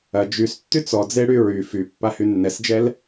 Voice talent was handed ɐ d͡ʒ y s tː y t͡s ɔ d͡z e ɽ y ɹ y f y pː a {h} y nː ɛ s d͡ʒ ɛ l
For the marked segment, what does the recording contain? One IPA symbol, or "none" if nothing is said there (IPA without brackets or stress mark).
h